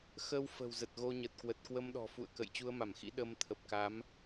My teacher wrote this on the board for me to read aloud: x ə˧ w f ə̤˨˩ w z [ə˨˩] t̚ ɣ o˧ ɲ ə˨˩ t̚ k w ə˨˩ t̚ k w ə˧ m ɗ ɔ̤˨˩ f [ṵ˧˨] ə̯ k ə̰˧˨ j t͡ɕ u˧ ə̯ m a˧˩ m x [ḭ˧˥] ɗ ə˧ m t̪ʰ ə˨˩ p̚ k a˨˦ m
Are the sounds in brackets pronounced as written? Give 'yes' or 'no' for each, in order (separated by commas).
yes, yes, yes